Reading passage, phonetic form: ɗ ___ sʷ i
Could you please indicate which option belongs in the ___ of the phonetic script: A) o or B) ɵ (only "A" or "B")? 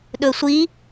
B